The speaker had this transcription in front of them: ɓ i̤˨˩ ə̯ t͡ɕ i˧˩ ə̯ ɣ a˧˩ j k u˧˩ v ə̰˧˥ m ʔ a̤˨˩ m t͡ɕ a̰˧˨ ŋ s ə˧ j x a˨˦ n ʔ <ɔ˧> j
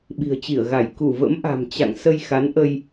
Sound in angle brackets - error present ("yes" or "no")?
yes